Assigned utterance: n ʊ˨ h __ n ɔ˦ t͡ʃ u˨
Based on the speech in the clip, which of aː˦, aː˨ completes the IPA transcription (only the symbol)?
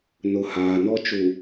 aː˨